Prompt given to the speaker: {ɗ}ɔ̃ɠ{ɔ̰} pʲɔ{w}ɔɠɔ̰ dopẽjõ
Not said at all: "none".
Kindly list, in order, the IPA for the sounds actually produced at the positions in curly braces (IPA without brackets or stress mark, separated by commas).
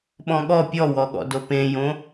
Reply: ɓ, ɔ, w